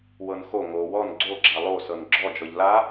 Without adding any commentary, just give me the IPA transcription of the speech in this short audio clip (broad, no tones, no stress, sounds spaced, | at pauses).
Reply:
w ɤ n x o ŋ o w ɔ n ɡ͡ǀ o ɡ͡ǁ a lˠ o s ɤ n ɡ͡ǁ ɔ d͡ʒ ɔ ʎ l a